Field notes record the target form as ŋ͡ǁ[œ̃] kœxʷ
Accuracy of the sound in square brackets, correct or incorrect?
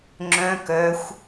correct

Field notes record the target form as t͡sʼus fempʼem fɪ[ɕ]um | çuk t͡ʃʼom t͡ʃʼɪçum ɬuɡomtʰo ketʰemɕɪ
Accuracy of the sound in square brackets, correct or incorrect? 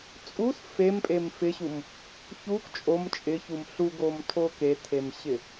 correct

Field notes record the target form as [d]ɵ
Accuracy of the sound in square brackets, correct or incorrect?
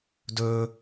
correct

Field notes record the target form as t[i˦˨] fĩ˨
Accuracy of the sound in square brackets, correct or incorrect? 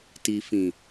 incorrect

